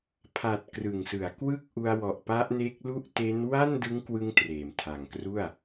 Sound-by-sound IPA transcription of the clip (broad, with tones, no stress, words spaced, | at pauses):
pʰa˨˩t̚ krɯ˨˩ŋsɯ˩˦a̯kwɯ˥˩k̚ʔu˧a̯ wɔ˨˩ʔpa˦˥ʔne˦˥k̚lu˥˩ʔ te˦˥n wa˥˩ndɯ˦˥ŋkwɯ˧ŋ treː˩˦mtʰa˨˩ŋkru˥˩a̯